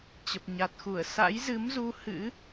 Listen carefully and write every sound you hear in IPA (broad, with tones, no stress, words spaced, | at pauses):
t͡ɕə˨˩p̚ɲa˨˩t̚xu˧˩ə̯ sa̰˧˥jzɨ˨˦mzu˧ hɨ̰˧˥